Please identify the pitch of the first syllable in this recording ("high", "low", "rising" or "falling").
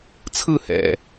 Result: falling